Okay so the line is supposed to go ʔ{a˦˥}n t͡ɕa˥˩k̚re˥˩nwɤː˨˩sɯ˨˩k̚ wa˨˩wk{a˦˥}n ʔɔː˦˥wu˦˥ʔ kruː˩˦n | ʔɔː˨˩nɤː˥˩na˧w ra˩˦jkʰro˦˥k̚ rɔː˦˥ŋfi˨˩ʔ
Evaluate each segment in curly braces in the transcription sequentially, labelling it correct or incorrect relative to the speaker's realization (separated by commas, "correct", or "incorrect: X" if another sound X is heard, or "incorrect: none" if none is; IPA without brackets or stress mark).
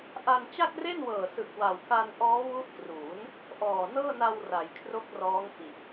incorrect: a˧, incorrect: a˧